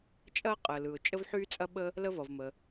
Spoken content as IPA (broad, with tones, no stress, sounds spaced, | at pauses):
t͡ʃʼ ɐː˥ qʼ əː˩ l ɯ˩ ʊ̯ t͡ʃʼ ə˥ v ħ yː˥ t͡sʼ ɐ˥ ɓ ə˥ | l ə˥ v ʌ˩ v m ə˩